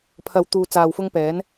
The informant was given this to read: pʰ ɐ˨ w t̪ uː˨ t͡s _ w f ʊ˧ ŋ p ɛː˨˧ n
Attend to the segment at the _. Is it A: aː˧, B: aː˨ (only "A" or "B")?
B